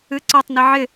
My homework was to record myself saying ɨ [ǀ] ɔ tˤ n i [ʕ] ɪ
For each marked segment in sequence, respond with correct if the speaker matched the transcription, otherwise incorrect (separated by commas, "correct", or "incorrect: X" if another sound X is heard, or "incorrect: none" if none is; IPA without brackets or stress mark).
correct, correct